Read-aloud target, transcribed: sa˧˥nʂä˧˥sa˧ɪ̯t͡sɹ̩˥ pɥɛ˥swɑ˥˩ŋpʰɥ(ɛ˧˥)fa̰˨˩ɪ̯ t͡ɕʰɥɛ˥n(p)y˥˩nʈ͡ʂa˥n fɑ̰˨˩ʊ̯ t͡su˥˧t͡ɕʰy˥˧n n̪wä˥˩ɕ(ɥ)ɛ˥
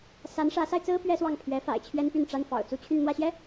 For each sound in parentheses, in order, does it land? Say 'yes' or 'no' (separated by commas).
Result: yes, yes, no